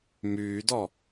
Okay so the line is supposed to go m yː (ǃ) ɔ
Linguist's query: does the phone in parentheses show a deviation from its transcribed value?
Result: yes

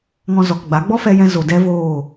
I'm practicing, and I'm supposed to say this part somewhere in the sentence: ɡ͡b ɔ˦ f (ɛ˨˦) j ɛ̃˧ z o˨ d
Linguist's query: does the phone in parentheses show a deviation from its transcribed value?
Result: yes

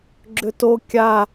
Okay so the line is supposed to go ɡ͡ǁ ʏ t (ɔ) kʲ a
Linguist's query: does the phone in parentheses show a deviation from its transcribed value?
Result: yes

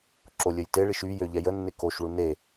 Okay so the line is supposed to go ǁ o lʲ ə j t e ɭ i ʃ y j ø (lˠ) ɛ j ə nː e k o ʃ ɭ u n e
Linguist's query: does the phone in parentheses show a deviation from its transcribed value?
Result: yes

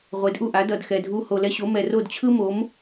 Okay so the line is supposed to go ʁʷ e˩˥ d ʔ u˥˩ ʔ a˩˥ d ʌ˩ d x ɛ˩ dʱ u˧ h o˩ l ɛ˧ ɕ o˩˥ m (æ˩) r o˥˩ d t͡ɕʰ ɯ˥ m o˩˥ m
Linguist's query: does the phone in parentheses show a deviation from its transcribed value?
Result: yes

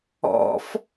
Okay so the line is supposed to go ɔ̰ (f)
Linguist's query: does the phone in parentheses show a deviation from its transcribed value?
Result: no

